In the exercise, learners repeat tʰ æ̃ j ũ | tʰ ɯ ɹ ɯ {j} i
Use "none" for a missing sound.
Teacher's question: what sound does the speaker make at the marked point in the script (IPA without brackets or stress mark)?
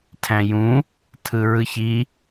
ç